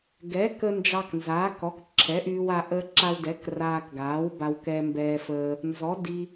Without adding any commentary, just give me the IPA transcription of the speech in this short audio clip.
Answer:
ɡ ɛ˩˥ k ə˧ n d͡ʒ ɑ˧ k n z aː˩˥ k ɔ˩˥ k ǁʰ ɛ˩˥ ʔ yː˧ w a˧ ʔ əː˧ ǁ a˧ w d ɛ˩˥ k r aː˧ k ɡ aː˩˥ w b a˧ w k ɛ˧ m b ɛː˧ f əː˧ | n z ɔ˩˥ d i˧

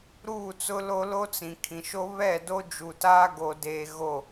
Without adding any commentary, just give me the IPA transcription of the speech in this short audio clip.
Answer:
ɾ uː˦˨ t͡s ʊ˦ l o˦ l o˦ t͡s ĩ˨ kʰ ĩ˨ ʃ o˦ β ɛ˦˨ d o˦ d͡ʒ u˨ t aː˦ ɡ o˨ d eː˨ ɣ o˦˨

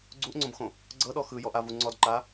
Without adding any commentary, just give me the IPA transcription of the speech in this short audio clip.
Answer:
ɡ͡ǀ u ʔ ŋ͡ǀ õ b x õ | ɡ͡ǀ ɤ ɗ ɔ x ɯ j ɔ ʔ a v u ŋ͡ǀ ɔ d ǃ a

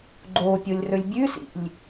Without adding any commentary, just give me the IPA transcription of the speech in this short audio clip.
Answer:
ɡ͡ǃ o pʲ o lʲ r ɵ lʲ bʲ ʉ s ḭ lʲ

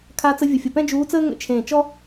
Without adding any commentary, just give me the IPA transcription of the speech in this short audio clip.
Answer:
kʰ a˧˥ t͡s ə˧˥ vʲ ʊ˧˩ fʲ ʊ˧˩ p ɛ̃˥ d͡ʒ uː˧˥ t͡s əː˥ ŋ ə̰˧˩ t͡ʃʰ ẽː˧˩ t͡ʃ ɔ˥

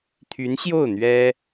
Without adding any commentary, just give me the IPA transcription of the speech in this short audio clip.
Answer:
t̪ʰ y˧˥ n ɕ j o˥˩ ʊ̯ n̪ ɥ ɛ˥

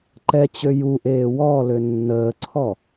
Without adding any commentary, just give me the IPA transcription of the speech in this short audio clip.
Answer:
ǃ ɛ t͡ɕ ø j u ʔ eː w ɔ l ø nː əː ǀʰ ɔ

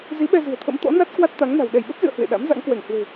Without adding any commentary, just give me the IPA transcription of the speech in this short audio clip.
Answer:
z i˨˦ ɓ ɛ˧ z ɨ̤˨˩ ə̯ t̪ʰ ə̰˧˥ m t̪ ɔ̰˧˥ n a˦˥ t̚ k w a˦˥ t̚ t̪ a˨˦ ŋ n a̤˨˩ w ɗ ɛ˧˩ j ɓ ə˦˥ p̚ z ɨ̰˧˨ ə̯ h w ḛ˧˨ ɗ a̰˧˥ m z a̰˧˥ ŋ k w ɛ˧˩ ŋ h w e̤˨˩

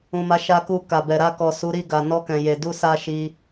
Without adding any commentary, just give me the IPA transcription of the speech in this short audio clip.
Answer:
ũ˨ m a˨˦ ʃ a˧ k u˧ k a˨ b ɛ˨ ɾ a˧ k ɔ˨ s u˨˦ ɾ i˦˨ ɡ a˨ n ɔ˧ k ɛ̃˨ j e˨ d u˧ s a˧ ʃ i˦

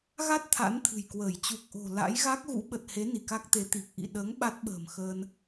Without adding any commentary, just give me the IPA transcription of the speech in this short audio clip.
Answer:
ɣ a˦˥ t̚ t̪ʰ a̰˧˥ n t̪ʰ ɨ̤˨˩ j k w əː˧˩ j t͡ɕ u˨˩ k̚ ʔ o̤˨˩ l a̰˧˥ j ɣ a˦˥ k̚ ɣ ṵ˧˥ ɓ ə˨˩ t̚ h e˨˦ n i˧˩ k a˦˥ k̚ t̪ e˨˦ t̪ i˨˩ k̚ ʔ ḭ˧˨ ɗ əː˨˦ ŋ ɓ a˦˥ t̚ ɓ ə̤ː˨˩ m x əː˧ n

